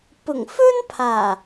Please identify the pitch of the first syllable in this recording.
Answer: low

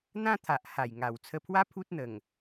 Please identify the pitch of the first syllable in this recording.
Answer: high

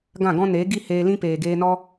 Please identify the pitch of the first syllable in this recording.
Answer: falling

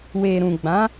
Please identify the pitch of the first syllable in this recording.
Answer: low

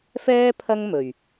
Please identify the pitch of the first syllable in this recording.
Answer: high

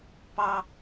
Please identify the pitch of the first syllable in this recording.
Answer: high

